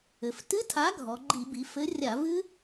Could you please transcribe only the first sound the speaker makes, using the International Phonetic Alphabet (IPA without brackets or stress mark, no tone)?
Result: ɘ